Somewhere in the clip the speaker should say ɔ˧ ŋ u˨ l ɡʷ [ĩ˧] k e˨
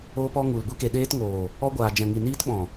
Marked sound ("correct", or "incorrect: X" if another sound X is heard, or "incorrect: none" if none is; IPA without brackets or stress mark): incorrect: i˧